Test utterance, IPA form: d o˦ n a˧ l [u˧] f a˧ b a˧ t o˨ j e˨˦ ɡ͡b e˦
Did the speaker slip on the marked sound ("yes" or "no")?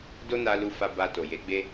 no